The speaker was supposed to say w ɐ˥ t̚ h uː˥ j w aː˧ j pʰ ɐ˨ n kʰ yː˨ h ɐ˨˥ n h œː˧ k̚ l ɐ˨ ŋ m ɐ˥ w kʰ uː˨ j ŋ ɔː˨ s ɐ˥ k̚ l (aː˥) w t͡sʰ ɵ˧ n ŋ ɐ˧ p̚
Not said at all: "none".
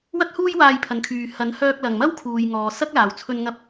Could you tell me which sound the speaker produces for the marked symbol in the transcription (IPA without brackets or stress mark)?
aː˨